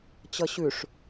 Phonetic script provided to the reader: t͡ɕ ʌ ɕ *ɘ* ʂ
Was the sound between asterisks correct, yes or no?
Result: no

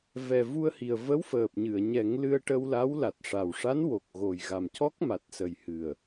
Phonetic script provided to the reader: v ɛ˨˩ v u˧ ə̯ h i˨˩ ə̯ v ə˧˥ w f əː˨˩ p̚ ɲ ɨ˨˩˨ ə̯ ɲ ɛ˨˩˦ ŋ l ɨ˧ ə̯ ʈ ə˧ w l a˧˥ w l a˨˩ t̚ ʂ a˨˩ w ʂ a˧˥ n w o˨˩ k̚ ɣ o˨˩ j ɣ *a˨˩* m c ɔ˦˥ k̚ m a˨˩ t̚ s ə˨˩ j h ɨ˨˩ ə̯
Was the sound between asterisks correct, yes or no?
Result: yes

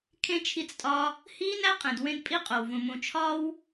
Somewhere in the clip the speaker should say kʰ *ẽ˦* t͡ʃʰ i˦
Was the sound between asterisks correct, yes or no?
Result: yes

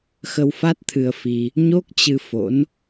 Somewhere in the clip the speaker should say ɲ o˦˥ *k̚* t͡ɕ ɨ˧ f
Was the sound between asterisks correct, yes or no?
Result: yes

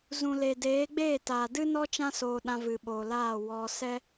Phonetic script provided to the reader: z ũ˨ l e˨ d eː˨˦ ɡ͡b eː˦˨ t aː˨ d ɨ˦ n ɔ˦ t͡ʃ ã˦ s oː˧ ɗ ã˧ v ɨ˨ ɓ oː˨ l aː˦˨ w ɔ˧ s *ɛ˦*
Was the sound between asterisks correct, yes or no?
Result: yes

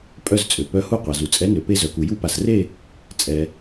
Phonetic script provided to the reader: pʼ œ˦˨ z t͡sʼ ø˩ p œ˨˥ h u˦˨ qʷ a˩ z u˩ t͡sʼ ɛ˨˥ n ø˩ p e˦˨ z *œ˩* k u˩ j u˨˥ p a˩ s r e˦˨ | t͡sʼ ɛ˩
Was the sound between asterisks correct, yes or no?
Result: yes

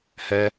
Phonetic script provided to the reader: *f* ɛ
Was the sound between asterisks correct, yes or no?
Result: no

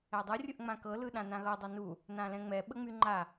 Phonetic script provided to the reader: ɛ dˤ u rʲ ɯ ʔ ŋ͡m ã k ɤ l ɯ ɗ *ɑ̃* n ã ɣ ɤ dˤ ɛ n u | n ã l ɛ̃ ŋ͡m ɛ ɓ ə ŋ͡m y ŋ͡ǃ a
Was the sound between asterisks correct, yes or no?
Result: no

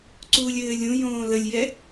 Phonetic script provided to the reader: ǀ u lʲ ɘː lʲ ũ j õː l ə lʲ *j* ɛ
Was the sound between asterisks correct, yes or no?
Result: yes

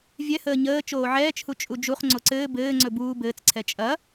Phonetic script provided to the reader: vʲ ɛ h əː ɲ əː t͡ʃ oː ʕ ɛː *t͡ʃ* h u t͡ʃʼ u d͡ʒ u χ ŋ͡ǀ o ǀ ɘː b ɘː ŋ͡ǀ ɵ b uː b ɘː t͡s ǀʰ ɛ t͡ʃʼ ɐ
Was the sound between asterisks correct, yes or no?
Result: yes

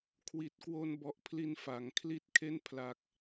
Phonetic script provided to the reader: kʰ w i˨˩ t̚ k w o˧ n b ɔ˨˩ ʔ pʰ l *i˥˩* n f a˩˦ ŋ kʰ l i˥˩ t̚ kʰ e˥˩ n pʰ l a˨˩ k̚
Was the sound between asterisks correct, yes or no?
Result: no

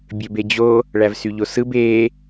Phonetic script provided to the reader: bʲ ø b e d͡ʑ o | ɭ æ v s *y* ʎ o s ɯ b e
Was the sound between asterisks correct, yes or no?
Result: yes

